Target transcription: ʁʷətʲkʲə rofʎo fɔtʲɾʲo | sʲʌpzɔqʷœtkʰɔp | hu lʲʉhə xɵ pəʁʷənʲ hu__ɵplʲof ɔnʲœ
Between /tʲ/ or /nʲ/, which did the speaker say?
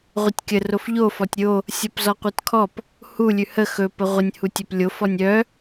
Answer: tʲ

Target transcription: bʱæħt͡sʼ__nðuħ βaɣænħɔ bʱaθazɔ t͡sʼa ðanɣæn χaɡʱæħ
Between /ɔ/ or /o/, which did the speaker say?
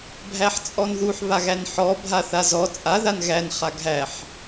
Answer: ɔ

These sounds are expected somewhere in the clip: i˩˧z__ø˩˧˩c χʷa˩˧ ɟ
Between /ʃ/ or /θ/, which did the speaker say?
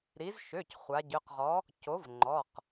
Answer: ʃ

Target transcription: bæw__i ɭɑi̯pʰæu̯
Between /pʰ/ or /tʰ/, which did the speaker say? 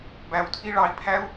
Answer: tʰ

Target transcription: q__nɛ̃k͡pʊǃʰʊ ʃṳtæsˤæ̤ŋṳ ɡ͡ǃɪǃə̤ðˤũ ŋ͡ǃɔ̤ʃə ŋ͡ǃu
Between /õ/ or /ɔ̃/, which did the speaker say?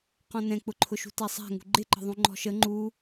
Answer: ɔ̃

